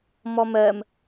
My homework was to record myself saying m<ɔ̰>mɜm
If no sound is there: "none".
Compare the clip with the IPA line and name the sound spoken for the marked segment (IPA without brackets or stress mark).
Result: ɔ